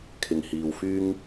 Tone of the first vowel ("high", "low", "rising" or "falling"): low